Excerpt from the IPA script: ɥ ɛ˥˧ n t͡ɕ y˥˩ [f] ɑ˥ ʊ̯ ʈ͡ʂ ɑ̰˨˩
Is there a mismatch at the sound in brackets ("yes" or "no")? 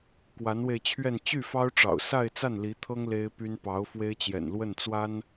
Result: no